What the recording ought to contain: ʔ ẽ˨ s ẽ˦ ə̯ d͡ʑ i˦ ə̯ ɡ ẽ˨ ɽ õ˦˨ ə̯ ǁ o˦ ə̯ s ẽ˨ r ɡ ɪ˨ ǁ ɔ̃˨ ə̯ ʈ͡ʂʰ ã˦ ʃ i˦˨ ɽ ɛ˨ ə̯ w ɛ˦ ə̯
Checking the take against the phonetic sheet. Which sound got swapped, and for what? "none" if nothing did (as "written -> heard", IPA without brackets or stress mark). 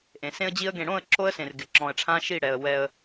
none